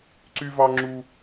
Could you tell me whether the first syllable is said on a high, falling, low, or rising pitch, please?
high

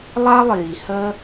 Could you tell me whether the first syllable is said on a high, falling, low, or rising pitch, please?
high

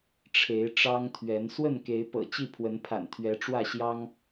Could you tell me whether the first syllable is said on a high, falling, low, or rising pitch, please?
rising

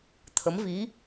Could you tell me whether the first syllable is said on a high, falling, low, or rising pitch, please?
rising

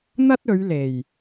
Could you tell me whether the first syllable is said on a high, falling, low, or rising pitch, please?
high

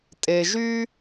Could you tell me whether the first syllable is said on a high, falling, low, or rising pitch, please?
low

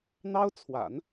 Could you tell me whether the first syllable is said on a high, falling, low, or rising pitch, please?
high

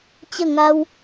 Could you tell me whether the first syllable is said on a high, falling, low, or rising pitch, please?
falling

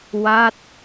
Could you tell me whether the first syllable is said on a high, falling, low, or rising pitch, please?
falling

